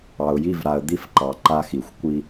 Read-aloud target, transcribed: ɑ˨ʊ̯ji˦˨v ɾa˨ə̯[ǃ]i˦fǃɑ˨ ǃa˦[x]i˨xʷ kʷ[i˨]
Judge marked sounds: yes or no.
no, yes, no

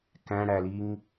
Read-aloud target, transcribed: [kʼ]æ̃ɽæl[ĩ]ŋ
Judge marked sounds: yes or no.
no, no

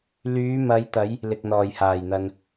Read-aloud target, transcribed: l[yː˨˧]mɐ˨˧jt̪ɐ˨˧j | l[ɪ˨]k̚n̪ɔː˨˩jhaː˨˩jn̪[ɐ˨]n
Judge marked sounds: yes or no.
yes, yes, yes

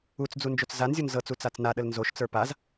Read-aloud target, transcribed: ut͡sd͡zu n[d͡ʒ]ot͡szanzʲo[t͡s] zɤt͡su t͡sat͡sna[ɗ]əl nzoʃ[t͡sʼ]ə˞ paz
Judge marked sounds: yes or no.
yes, no, yes, no

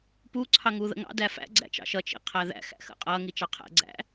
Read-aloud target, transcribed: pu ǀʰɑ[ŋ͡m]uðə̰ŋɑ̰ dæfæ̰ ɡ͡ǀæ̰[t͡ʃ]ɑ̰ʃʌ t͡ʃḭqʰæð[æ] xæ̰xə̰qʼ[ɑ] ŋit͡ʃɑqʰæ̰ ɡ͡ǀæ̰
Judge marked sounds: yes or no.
no, yes, no, no

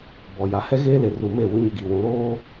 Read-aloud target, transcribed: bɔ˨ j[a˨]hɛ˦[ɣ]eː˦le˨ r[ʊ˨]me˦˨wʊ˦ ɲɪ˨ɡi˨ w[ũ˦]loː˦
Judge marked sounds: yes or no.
yes, yes, no, no

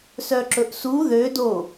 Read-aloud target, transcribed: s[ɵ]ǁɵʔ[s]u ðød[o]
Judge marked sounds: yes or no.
no, yes, yes

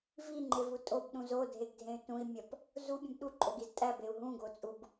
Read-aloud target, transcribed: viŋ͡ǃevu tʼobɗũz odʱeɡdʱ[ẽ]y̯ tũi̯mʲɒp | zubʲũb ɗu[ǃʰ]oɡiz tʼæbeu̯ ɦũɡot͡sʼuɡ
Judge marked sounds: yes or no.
yes, no

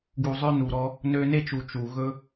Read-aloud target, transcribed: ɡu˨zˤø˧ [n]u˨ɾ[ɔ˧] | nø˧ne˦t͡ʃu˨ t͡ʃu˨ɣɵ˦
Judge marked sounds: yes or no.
yes, yes

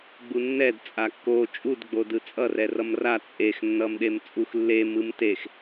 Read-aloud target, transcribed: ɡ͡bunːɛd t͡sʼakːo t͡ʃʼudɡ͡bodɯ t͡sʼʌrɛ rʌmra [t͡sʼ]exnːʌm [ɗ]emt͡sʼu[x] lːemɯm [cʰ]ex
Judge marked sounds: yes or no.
yes, yes, yes, no

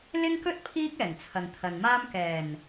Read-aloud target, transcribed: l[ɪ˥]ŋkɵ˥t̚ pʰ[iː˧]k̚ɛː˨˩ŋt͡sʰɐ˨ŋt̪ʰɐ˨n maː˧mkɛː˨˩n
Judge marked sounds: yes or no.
yes, no

